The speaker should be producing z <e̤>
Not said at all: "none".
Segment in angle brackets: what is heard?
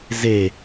e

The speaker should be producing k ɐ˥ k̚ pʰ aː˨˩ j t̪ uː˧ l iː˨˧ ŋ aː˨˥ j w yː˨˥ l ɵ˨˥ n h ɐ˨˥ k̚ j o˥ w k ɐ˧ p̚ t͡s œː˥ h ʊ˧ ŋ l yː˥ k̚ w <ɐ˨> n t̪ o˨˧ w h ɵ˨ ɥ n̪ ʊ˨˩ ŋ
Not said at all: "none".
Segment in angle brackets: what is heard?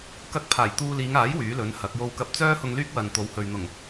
ɐ˨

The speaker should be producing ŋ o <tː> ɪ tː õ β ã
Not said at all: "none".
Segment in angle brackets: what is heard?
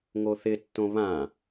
θ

